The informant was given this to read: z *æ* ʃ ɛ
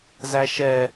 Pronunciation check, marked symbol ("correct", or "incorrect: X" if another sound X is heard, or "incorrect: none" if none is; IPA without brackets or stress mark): correct